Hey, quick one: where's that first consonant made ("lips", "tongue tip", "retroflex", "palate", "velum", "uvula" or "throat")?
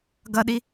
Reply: velum